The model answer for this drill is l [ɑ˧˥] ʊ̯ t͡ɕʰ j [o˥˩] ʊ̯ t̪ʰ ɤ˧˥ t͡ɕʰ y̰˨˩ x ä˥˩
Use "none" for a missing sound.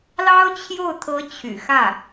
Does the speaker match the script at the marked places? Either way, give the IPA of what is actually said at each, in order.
ɑ˥, o˥˩

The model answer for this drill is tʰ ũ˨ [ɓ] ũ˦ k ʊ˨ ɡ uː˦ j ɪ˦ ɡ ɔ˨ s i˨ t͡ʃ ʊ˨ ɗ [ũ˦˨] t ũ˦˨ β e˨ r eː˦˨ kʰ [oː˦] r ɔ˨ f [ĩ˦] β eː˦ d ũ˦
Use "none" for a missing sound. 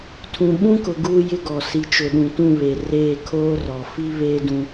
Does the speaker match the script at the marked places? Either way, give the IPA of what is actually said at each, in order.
ɓ, ũ˨, oː˦, i˦

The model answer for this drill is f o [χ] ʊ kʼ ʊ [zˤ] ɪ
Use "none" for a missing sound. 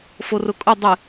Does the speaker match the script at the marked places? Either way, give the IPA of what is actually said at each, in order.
r, dˤ

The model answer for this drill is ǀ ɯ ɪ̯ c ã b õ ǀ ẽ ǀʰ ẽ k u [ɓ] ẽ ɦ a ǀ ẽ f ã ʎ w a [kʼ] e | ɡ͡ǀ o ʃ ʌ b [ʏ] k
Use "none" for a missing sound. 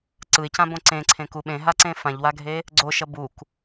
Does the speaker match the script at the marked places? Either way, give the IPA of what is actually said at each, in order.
ɓ, ɡʱ, u

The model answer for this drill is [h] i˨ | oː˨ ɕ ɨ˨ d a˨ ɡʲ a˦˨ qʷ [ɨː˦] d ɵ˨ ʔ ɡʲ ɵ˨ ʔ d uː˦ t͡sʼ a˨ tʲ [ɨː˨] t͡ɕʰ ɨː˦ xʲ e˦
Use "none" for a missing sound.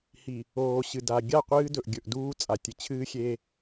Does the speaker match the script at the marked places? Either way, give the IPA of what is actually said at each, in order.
h, ɨː˦, ɨ˨

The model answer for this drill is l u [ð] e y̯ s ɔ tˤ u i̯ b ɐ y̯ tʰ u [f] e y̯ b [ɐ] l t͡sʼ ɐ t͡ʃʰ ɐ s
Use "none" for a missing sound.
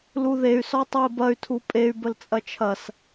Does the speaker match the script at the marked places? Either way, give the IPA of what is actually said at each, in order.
ð, pʼ, ə

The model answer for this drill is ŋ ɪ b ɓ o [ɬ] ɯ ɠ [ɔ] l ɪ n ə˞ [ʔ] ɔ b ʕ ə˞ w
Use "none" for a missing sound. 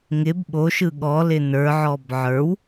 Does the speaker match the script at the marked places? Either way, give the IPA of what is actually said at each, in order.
ʃ, ɔ, ʕ

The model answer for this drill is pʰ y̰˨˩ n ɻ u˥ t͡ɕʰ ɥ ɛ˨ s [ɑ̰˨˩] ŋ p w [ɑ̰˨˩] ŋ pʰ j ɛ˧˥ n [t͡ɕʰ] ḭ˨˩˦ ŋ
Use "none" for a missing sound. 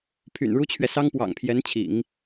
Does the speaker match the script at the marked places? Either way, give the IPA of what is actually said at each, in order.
ɑ˥, ɑ̰˨˩, t͡ɕʰ

